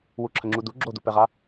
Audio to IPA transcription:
wuǁʰəŋ͡ǁudu ɡ͡ǁodupɛʁa

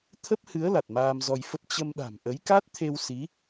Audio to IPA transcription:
t̪ʰə˦˥p̚hɨ˨˦ə̯ la˨˩t̚maː˧mzɔ˧jfə˦˥p̚ t͡ɕə˧mɗa̤˨˩m ʔə˨˦jka˦˥t̚t̪ʰe˧w si˨˦

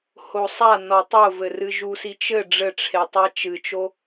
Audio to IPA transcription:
hosˤanɔ tˤovɘrɨ ʒusit͡ʃɘ ɖ͡ʐɘʈ͡ʂʰetˤa t͡ʃɨt͡ʃo

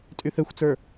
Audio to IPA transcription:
tʼyθɛxʷt͡sə˞

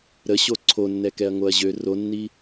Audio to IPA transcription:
ɾəɕo ǀʰonːɛkɛɐ̯ ŋoɐ̯ʑø ronːi

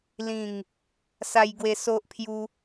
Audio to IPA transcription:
lĩ˥˧ŋ | sa˦jɡwe˦ so˦ʔpʰju˦

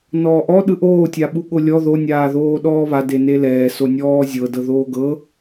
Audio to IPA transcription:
nɔːʔɔ ɗɯʔoː tʲaɓuɠolʲɔ ðo nʲaːðoːɗɔːβa denelɛː sonʲɔːzʲɤ dɤðoːɡɤ

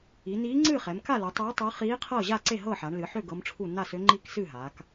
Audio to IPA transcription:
i˩˧niː˧˥ŋ͡ǀɨː˥˨ χɛ˩˧mka˥˨lu˩˧tˤøː˧˥ tˤɨ˧˥ χiː˧˥qʰɤː˥˨ʑa˥˨ ǀe˥˨ɦɤː˥˨ħa˩˧ɳ lɨ˩˧ħø˥˨ ɡɤ˧˥mʈ͡ʂʰu˥˨ na˥˨sø˧˥ŋ͡ǃiː˥˨k sɨ˥˨ɦaː˩˧k

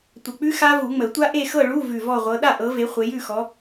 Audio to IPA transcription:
tʷə˧˩k͡pʉ˦˥ xa˦˥ vu˨˩˦ŋ͡mə˨˩˦tʷa˦˥ʔe˥˨ xɤ˥˨ɭu˧˥˧ vʉ˧˩vɔ˥˨ʁʷɤ˨˦ ɗa˥˨ʔɤ˨˦ve˨˦ χʷe˨˦jʉ˥˨xɔ˨˦

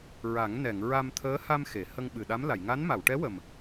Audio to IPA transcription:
ɹa˨˩˦ŋ nɛ˨˩˨ŋ ɹa˧mt̪ʰəː˧˥ha˧m xe˨˩˨ hə˧ŋɓɨ˨˩ɗa˧˥m la˨˩˨jŋa˧˥n ma˨˩˨wʈɛ˧˥wə˨˩m

